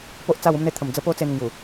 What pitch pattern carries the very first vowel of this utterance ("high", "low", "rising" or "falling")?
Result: high